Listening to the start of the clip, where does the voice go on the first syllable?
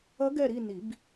rising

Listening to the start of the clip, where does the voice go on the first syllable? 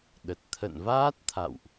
low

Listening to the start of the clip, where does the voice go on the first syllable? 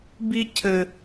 high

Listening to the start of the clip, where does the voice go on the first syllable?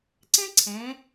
high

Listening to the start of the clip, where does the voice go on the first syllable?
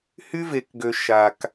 high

